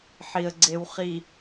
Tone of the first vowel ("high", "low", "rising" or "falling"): low